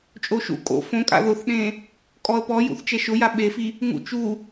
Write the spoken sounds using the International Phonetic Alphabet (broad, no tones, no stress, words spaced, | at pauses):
t͡ʃʼoʃṵ kʼo̰ fõkʼa̰ ðʊθɗẽ | kʼɔə̯pɔjṵθ t͡ʃɛʃʊja ɓefi | ŋṵt͡ʃu